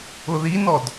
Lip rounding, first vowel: rounded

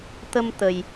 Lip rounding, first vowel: unrounded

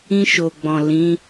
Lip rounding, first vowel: unrounded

